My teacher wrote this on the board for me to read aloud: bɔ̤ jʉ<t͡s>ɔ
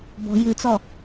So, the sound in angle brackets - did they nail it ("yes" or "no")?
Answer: yes